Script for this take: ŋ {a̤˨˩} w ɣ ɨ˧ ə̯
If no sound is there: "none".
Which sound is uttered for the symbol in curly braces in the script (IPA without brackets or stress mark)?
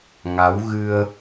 a˨˦